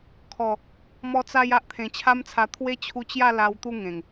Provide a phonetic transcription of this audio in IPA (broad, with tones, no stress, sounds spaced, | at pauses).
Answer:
kʰ ɔ˨˩ | m ɔ˧ t͡s a˧ j a˦ ʔ t̪ʰ ẽ˨˩ t͡ɕʰ a˦ m t͡sʰ a˧ t̪ʰ w e˦ t͡ɕʰ u˧ t͡ɕ j a˥˧ l a˧ w t̪ u˥˧ ŋ ẽ˨˩ ŋ